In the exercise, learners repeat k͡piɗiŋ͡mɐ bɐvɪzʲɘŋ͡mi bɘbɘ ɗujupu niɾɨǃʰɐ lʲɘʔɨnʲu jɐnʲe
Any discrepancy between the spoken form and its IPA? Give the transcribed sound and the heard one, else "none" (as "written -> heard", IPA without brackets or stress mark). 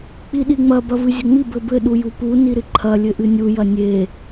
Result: ɪ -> ɨ